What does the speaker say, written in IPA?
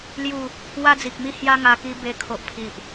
l j u˥˧ | w a˧ d͡z i˨ k̚ m i˧ h j a˧ ŋ a˧ k i˦ b e˦ kʰ o˦ ʔ pʰ i˦ ʔ

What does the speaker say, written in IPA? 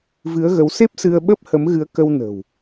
v ɨ˨˦ ə̯ ɣ ə˨˦ w s e˦˥ p̚ s ɨ˧ ə̯ ɓ ə˦˥ p̚ h ə˨˦ m ɣ ɨ˨˦ ə̯ k ə˧ w n ə̤˨˩ w

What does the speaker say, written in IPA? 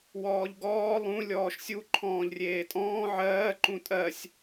w ɔː ʎ ɡ ɔː lˠ ũ lʲ ɔː ʃ sʲ u ǃʰ ɔ̃ː ʎ rʲ eː tʼ ɔ̃ː ʕ ɜː ǃ ũ tʼ ɜ sʲ

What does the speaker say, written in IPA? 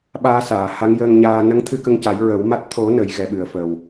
ɓ aː˧ s aː˨˩˨ h a˧˥ ŋ j əː˧ ŋ ɲ aː˧ n ə˧˥ ŋ t̪ʰ ɨ˧ k ə˧ ŋ c a˨˩˦ j ɹ ə˨˩˦ w m a˦˥ t̚ t̪ʰ o˨˩˦ n ə˨˩˦ j ɣ ɛ˨˩˦ ɓ ɨ˨˩ ə̯ f əː˨˩ w

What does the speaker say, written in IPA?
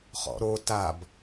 χ ɔ̰ ɾ o t a b

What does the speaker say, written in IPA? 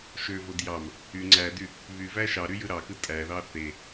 ʃ ø v o d j ɑ m | y ŋ͡ǀ æ d y | β y v æ ʃ ɑ ɾ y j ɯ ɾ ɑ k ɯ tʼ æ ð ɑ θ e

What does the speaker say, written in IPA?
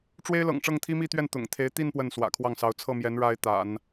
ʈ͡ʂ w e˥ ɪ̯ l ɤ̰˨˩ ŋ ʈ͡ʂ ɤ˥˩ ŋ t̪ʰ i˥ m i˥˧ t̪ ɥ ɛ˥˩ n t̪ ʊ̰˨˩ ŋ t̪ʰ e˧˥ ɪ̯ t̪ i˥˧ n p w ə˥˩ n s w ä̰˨˩ kʰ w ɑ˥˩ ŋ s ɑ˧˥ ʊ̯ t͡sʰ ɤ˥˩ m j ɛ˧˥ n ɻ a˥ ɪ̯ t̪ a̰˨˩˦ n

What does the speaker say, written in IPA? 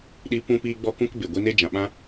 ɗ i˧ p ũ˦ p iː˦ ɡ͡b ɔ˦ k ũ˦ k b e˨ ɡʷ i˦ n e˦ d͡ʒ ã˨ ɓ ã˦

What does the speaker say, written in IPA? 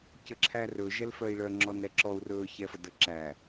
c ə ǁʰ æ r ɵ ʒ ɛ l f œ i̯ ɭ œ ŋ͡ǁ ɔ n ɾ ɛ ǁ ɔ u̯ r ɵ ç ɛ f ə d ə ǁ æ

